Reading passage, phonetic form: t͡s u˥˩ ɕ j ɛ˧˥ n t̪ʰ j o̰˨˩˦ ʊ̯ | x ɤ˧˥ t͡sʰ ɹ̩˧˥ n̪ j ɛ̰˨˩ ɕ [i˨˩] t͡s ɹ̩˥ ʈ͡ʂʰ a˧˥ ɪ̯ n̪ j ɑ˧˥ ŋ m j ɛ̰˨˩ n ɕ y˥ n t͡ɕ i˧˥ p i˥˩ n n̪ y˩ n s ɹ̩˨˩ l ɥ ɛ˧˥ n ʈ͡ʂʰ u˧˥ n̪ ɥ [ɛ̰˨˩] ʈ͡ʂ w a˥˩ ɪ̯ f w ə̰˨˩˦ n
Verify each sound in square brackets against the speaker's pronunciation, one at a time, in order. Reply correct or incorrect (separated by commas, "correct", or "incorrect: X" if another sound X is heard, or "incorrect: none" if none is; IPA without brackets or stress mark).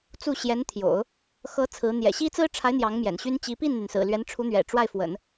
incorrect: i˥, correct